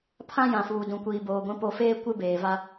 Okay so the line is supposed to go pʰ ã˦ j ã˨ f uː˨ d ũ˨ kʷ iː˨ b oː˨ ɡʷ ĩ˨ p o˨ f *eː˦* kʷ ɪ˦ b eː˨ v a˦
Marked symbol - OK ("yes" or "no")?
yes